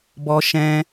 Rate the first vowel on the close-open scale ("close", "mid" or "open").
mid